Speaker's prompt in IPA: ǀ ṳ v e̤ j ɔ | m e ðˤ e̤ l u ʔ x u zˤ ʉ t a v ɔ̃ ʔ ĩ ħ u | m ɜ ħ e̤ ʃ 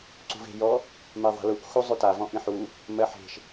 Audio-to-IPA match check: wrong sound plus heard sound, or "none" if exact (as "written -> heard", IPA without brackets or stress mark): none